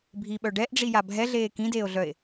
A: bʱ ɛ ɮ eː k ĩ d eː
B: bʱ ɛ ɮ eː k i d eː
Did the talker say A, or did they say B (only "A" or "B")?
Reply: A